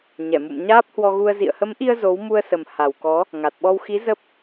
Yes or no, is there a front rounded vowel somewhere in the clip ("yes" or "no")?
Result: no